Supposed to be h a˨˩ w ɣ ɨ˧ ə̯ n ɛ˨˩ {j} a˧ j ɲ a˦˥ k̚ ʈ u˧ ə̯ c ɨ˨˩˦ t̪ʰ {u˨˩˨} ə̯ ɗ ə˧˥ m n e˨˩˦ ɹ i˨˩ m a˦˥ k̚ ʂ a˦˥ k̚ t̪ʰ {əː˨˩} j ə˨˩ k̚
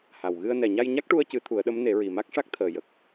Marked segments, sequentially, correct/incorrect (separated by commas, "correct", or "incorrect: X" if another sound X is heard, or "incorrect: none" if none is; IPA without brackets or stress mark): incorrect: ɲ, incorrect: u˨˩˦, correct